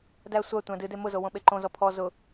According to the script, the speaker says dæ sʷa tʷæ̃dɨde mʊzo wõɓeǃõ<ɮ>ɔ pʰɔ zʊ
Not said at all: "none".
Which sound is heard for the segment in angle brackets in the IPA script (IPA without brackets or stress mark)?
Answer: z